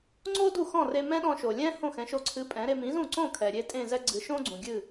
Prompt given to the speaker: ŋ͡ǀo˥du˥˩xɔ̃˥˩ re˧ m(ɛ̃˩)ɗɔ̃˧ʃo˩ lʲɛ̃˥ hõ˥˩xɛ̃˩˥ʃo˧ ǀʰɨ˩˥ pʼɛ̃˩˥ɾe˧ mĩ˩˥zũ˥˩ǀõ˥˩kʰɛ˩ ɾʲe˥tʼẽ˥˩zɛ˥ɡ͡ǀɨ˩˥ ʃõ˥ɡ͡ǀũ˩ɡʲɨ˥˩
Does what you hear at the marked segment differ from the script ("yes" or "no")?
yes